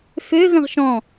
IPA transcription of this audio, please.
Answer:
f ø ɣ ə̃ ʁ ʃ ɔ̃

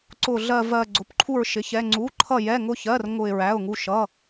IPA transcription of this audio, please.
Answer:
ǀ ʊ˥˧ ɮ ɜ˥˧ v ɜ˥˧ ɡ͡ǀ ʊ˧˥˧ p ǃʰ u˥˧ ɹ ʃ ɪ˧˥˧ ç ɛ˧˥˧ ŋ͡ǀ u˧˥˧ ǃʰ ʌ˥˧ j ɛ˧˥˧ ŋ ʊ˥˧ ç ɜ˧˥˧ r ŋ ʊ˥˧ ɪ̯ ɹ æ˧˥˧ ʊ̯ ŋ u˥˧ ʃ ʌ˧˥˧

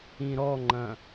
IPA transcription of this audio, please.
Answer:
ĩ ɾ ɔ ŋ͡ǃ ɐ̃

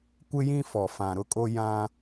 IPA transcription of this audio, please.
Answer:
kʷ ɪ˦ j ĩ˦ f ɔ˨ f ã˨ ɾ ʊ˦ kʼ o˦ j ã˦

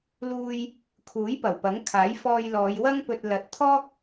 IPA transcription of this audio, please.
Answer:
l uː˧ j | kʰ uː˨˥ j p ɐ˨˩ w p ɐ˨˥ ŋ kʰ aː˨˥ j f ɔː˧ j l ɔː˨˧ j w ɐ˥ ŋ p ɵ˧ t̚ l ɐ˨˥ t̚ t̪ʰ ɔː˥ k̚

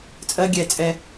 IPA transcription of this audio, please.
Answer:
t͡sʼ ɜ˦ ɡʲ ɛ˧ t͡sʼ ɛ˧

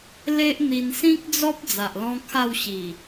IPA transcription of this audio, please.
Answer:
l e˦ ʔ n̪ i˧ n s ĩ˦ k̚ d͡z ɔ˦ p̚ d͡z a˨ ʔ l ɔ̃˦ kʰ a˥˧ w ɕ i˨˩

